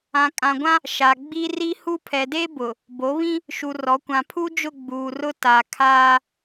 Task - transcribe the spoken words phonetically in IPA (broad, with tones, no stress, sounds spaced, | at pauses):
ã˨ kʼ ã˨ ɡʷ ã˦ | ʃ a˨ ɡ͡b i˦ r i˦ h u˦ pʰ ɛ˨ d e˦ b ʊ˨ | b o˨˦ β ĩ˦ | ʃ u˨ r ɔ˨˦ kʷ ã˨ pʰ u˦ d͡ʒ ʊ˦˨ ɡ͡b uː˨ r ʊ˦ t a˨ kʰ aː˦